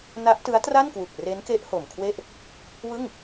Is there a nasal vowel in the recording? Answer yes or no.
no